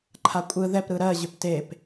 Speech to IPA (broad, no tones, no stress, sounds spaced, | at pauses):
ǃʰ a kʷʼ ɯ ð ɛ p ɾ ɯ ɾ ɜ ʑ ʏ p t e p